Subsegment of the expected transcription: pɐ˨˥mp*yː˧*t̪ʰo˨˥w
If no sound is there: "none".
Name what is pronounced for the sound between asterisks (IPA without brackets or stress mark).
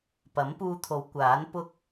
uː˧